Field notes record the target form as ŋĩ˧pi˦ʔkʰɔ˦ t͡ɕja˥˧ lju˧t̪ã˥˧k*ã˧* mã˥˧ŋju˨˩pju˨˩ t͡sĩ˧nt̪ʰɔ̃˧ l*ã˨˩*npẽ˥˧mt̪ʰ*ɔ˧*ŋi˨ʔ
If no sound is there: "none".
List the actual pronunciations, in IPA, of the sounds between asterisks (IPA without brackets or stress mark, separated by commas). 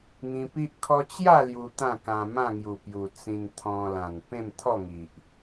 ã˧, ã˨˩, ɔ˥˧